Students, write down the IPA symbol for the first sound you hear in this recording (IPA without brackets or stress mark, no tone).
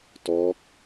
t